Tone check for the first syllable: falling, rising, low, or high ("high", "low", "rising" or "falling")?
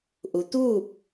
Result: low